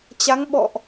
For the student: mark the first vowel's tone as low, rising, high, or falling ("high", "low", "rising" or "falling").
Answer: rising